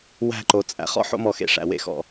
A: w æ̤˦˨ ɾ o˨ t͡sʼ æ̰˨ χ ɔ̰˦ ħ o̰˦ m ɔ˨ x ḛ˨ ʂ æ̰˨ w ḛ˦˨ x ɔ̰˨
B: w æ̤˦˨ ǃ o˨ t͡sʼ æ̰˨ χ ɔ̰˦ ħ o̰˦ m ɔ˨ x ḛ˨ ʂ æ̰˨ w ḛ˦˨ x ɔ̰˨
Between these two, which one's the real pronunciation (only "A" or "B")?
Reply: B